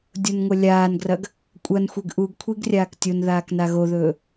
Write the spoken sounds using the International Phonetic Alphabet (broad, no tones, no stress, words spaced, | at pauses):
dʲonŋʷɐlʲaːnɡrɐɡ | kʷʼɐnxʷeɡ ʔuɡkʷʰiɡ rʲaːktʲonðaːk naɣoðɵː